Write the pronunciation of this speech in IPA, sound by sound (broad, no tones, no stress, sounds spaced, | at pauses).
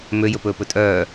m ø j ɵ p ɵː p ɵ tʼ œː